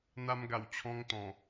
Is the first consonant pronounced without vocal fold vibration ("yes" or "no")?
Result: no